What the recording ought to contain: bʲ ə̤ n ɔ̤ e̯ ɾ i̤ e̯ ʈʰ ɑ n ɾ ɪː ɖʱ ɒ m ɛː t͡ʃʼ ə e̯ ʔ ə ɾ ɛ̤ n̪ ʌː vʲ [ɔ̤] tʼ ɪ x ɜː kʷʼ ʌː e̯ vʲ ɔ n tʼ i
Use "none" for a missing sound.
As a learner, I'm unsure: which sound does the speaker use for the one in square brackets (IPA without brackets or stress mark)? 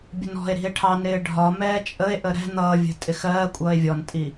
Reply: ə̤